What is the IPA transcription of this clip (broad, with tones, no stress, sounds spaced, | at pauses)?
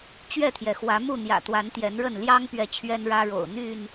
t͡ɕ ɥ ɛ˥˨ t̪ʰ j ɛ˩ x w ä˨˦ m u˥˨ n̪ j ä̰˨˩ t̪ w a˨˦ n t̪ j ɛ˨˦ n ɻ ə˥˨ n l j ɑ˦ ŋ p ɥ ɛ˨ t͡ɕʰ ɥ ɛ˦ n ɻ ä˦ ɻ o̰˨˩ ʊ̯ n̪ y˥˨ n